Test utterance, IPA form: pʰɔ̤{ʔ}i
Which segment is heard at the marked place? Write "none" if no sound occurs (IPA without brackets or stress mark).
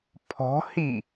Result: h